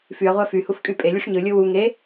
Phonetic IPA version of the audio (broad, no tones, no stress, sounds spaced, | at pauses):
f y ɐ̯ ʁʷ æ f y h u f kʼ y pʼ e lʲ u ʂ ɲ ɯ lʲ ɯ w u ŋ e